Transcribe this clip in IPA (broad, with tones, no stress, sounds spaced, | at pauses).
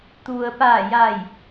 t̪ u˩ ə̯ p aː˧˩ j a˧˩ j